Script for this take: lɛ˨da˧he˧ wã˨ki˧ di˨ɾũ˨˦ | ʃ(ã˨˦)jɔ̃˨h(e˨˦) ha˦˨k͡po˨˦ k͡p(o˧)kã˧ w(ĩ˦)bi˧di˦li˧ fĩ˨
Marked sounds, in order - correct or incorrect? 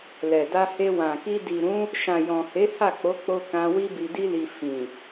incorrect, correct, correct, incorrect

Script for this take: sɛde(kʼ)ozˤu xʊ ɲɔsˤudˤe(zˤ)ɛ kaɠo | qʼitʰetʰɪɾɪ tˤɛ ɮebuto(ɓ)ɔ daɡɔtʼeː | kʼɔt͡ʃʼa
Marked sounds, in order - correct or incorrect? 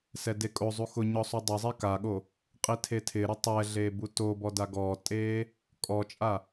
correct, correct, incorrect

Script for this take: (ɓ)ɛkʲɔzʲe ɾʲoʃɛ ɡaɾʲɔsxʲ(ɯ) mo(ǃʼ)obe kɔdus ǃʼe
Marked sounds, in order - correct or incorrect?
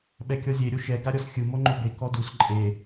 correct, correct, incorrect

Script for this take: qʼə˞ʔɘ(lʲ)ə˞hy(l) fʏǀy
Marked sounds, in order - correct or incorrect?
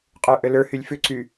incorrect, incorrect

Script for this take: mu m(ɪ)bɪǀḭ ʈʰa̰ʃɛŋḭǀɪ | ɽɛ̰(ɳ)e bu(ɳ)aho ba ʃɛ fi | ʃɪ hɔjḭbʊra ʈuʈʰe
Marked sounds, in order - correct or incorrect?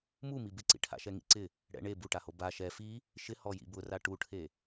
incorrect, correct, incorrect

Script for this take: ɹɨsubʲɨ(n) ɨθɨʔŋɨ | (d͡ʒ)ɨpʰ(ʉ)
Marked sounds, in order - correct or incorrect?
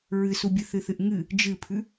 incorrect, correct, correct

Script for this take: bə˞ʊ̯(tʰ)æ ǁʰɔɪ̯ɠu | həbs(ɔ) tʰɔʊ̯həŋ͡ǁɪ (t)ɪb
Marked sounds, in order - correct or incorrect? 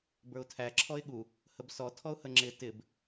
correct, correct, correct

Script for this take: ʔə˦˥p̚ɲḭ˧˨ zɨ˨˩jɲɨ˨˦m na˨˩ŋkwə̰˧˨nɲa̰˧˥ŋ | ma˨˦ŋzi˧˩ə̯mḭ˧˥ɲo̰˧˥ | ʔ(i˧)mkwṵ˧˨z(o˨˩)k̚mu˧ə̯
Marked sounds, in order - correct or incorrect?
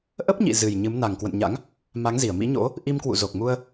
correct, correct

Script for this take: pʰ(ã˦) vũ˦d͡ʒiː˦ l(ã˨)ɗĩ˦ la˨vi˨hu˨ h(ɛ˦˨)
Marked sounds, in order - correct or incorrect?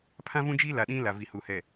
correct, incorrect, incorrect

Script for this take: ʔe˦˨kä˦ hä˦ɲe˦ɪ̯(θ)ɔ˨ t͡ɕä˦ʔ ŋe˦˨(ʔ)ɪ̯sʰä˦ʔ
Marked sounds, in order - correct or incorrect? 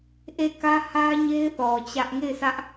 correct, incorrect

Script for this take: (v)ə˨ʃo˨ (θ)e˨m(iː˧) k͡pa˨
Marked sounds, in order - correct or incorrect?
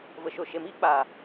correct, incorrect, incorrect

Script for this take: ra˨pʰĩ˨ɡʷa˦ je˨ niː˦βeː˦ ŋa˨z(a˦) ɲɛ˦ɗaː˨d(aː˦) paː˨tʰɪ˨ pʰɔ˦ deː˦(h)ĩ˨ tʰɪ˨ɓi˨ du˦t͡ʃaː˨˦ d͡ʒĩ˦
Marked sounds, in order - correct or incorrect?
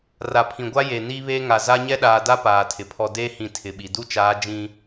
correct, incorrect, correct

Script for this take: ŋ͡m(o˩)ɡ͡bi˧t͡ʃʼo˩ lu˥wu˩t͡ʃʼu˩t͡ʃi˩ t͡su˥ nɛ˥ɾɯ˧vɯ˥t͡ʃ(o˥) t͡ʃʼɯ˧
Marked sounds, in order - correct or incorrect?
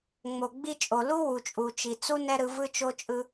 correct, correct

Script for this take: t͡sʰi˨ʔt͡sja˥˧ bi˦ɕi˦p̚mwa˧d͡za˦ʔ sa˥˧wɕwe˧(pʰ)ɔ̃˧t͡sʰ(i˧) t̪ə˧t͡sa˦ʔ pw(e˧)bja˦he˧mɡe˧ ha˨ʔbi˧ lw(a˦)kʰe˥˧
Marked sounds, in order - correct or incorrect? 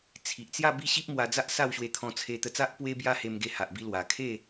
incorrect, incorrect, incorrect, incorrect

